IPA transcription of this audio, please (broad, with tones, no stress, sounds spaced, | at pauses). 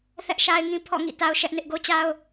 θ ɛ˦ ʔ ʃ a˦ ɪ̯ ŋ ĩ˦ pʰ ɔ̰˦˨ ŋ ḭ˦˨ t a˦ ʊ̯ ʃ ɛ˦ ʔ n ɪ˦ ʔ ɡ o˦ t͡ɕ a˦ ʊ̯